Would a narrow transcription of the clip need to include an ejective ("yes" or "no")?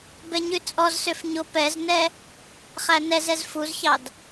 yes